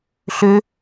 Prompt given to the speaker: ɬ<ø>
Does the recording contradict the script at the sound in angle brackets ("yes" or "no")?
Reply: no